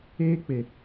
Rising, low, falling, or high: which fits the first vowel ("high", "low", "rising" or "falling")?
high